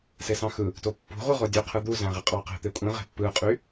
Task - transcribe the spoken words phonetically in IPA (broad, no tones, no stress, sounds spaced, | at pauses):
s e s ɑ̃ x ɯ | t o pː ṳ ʁʷ ɯ ʁ o dʲ ø qʰ ɯ d̪ u z æ̃ ʁ i qʼ ɑ q e̤ t̪ e kʷʼ ĩ ʁ e̤ pː ɯ qʼ y